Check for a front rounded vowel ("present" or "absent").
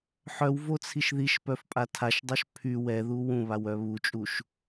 present